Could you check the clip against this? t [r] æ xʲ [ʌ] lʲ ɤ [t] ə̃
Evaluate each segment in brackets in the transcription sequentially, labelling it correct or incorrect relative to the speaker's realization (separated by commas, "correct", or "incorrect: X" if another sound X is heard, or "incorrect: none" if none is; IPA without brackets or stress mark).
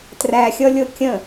correct, correct, incorrect: kʲ